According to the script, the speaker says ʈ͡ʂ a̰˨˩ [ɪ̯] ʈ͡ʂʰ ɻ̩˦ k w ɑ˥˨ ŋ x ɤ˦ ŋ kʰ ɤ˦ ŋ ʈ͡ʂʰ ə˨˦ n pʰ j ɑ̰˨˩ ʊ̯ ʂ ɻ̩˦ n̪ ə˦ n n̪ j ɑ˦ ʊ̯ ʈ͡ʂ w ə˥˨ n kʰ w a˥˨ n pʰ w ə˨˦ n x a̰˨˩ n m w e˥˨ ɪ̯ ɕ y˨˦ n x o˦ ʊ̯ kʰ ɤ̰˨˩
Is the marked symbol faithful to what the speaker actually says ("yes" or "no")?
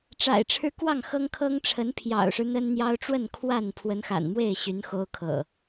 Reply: yes